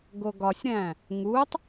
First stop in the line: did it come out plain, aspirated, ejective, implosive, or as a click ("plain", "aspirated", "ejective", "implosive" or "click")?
plain